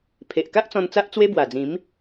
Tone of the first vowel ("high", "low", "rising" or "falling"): low